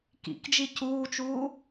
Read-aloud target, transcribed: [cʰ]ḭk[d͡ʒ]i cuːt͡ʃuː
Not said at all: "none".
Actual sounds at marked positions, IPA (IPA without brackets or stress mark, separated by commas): k, d͡ʒ